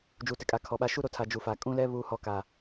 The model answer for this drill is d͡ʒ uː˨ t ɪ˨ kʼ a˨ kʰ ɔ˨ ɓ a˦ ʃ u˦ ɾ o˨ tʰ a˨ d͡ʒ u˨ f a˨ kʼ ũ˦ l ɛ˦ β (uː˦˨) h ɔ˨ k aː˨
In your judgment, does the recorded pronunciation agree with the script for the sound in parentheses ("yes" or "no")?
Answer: no